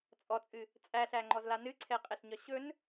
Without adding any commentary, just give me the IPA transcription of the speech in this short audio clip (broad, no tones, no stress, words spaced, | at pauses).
t͡sʼɔt͡sʼɨ | t͡sʼæɬæŋ͡ǃɔzla nɨǀʰɛqʼɛɬɲɒ ɕɵn